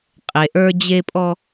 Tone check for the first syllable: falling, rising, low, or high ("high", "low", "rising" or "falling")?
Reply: low